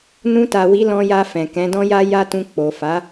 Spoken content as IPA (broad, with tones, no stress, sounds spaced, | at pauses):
n ũ˧ t a˨ w i˨˦ l ɔ̃˧ j a˧ f ɛ̃˨ k ɛ̃˨˦ d ɔ̃˦ j a˦ j a˦ t ũ˧ k͡p o˨ f a˨˦